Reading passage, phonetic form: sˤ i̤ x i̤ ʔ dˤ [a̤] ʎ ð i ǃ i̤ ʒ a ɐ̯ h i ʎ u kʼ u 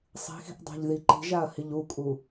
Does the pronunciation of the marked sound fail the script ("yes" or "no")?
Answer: no